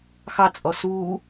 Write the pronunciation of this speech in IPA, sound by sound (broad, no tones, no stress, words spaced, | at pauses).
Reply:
xɑ t͡sʼɔsuː